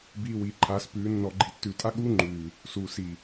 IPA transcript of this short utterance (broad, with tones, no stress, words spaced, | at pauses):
biː˨ wiː˨ǃʰaː˨˦spʉː˨˦ nːɔ˨ɡ͡ǃi˨ tːʉː˨tʼa˦ɠuː˦ŋ͡ǃʉː˨ | su˨ si˨